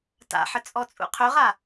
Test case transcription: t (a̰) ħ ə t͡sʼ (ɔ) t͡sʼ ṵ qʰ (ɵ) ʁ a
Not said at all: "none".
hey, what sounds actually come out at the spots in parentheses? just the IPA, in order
a̰, ɔ, ɵ

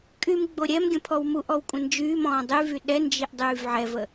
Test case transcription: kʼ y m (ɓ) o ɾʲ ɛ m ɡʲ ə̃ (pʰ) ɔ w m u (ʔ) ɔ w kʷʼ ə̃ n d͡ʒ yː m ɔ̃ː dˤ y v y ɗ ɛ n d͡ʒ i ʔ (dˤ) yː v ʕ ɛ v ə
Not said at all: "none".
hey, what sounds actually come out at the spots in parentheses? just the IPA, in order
ɡ͡b, pʰ, ʔ, dˤ

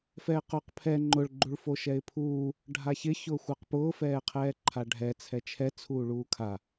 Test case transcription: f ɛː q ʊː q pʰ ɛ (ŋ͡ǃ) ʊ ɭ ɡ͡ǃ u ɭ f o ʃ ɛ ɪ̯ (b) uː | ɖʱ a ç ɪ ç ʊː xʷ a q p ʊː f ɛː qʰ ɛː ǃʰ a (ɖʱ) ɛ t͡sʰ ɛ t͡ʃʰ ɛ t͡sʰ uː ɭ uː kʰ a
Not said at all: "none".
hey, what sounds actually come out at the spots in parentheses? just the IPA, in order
ŋ͡ǃ, pʰ, ɖʱ

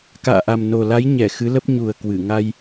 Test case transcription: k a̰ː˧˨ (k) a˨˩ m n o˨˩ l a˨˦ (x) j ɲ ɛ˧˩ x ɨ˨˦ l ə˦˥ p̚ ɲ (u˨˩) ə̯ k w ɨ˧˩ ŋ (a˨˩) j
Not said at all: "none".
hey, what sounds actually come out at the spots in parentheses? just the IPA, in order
ʔ, none, u˨˩, a˧

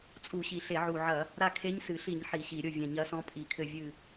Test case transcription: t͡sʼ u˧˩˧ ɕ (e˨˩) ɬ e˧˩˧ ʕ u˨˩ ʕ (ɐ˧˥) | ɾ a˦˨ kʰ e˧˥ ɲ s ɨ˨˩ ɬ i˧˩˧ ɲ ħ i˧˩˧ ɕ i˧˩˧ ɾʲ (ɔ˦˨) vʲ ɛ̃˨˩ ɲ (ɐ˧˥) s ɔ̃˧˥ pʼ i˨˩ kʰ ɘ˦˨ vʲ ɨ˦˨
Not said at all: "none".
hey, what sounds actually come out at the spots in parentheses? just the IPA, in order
i˨˩, ɐ˧˩˧, o˦˨, ɐ˧˥

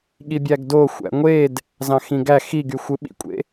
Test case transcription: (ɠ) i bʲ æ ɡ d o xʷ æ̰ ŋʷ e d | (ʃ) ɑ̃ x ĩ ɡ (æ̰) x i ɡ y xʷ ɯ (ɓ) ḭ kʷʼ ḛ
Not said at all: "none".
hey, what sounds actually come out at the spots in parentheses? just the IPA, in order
ɠ, z, æ, ɓ

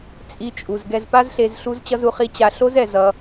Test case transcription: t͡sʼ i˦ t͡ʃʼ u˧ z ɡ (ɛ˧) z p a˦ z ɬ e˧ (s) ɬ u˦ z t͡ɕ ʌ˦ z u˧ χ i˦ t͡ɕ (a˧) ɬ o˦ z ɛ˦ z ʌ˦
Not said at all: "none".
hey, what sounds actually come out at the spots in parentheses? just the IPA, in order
ɛ˧, z, a˧

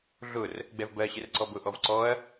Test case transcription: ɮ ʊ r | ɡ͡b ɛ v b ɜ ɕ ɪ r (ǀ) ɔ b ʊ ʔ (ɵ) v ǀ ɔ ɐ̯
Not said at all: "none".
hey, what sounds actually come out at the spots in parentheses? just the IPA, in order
ǀ, ɔ

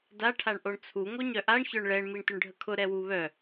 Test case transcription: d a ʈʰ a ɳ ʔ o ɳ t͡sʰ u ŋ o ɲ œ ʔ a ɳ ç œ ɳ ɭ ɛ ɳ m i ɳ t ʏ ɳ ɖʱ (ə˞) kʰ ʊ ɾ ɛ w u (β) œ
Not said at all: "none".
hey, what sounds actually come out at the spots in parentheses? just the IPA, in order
ə, β

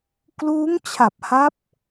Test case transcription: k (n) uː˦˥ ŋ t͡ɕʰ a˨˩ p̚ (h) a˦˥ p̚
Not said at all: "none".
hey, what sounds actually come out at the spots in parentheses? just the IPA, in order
l, h

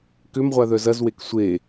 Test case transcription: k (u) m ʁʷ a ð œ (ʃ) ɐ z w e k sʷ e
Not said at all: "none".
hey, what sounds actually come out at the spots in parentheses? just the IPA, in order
ʏ, z

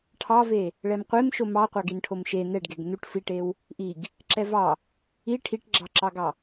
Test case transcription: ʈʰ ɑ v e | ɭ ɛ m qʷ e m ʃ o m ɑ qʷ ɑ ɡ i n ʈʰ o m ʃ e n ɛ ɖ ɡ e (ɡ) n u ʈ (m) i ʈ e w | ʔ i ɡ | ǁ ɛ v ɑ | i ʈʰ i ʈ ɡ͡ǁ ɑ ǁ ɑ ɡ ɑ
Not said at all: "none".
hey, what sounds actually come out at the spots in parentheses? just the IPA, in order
ɡ, f

